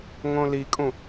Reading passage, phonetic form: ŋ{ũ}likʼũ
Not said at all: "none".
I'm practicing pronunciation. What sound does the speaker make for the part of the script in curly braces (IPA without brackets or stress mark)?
õ